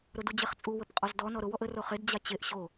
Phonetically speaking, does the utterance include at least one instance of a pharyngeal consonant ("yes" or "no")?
no